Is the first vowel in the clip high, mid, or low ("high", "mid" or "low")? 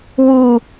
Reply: high